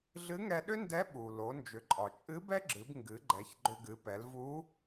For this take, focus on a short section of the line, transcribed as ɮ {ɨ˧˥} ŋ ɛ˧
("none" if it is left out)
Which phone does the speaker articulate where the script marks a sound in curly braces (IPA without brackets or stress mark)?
ɨ˧˥